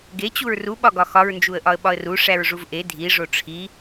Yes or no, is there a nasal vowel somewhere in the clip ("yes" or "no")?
no